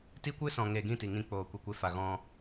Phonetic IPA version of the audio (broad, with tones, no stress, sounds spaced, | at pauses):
t i˦ kʷ ɨ˦ s ɔ̃˨ ŋ e˨ ɡ ĩ˦˨ t i˨ ŋ ĩ˧ k͡p oː˨ kʷ i˨ kʷ e˧ f a˨ ɣ ɔ̃˧